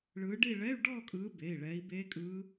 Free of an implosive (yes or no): yes